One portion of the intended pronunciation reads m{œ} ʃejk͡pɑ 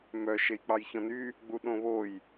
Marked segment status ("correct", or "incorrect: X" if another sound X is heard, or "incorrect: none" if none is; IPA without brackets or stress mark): correct